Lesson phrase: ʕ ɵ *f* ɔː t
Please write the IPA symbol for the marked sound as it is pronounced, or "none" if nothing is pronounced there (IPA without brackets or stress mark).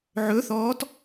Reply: θ